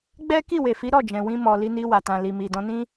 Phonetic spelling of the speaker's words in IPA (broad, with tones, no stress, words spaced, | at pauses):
ɡ͡bɛ˦ki˦˨we˨fi˨˦ ɾɔ˦˨d͡ʒɛ̃˨wĩ˧ mɔ˨li˧ni˧wa˨ tã˨li˨mi˨ dɔ̃˧nĩ˦